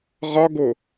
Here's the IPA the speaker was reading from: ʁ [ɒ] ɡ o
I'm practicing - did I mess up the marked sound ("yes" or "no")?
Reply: no